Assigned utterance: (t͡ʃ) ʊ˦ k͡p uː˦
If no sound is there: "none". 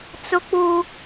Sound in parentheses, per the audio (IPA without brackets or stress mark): t͡s